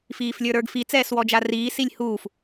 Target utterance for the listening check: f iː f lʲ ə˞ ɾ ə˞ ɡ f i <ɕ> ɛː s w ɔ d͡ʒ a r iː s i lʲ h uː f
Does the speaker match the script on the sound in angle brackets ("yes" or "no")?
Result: no